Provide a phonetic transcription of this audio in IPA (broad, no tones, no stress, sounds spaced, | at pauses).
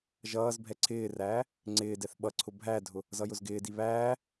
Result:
ʒ ʌː z bʱ ɛ ǀʰ ɪː r æː | ŋ͡ǀ ɪː d ɛ θ ɓ ʌ ǀʰ ʊ bʱ æ dʱ ʊ | z ʌ j ʊ z ɡ ɪː d i β æː